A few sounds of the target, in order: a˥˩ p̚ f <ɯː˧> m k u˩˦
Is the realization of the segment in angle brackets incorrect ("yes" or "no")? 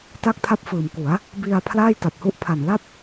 yes